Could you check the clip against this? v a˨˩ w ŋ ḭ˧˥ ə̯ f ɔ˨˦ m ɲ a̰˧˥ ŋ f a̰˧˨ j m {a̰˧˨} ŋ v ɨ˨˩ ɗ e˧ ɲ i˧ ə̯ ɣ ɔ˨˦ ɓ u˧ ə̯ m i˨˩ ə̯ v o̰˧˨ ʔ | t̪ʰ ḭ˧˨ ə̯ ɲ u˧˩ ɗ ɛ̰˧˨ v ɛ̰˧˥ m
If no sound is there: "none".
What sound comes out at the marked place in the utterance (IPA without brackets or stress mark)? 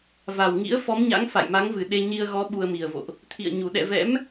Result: a˨˦